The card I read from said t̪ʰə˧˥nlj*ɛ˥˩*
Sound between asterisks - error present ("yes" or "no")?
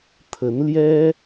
yes